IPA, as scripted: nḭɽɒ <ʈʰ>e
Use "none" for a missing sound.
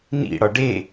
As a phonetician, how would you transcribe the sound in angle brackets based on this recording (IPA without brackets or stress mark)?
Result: ɖ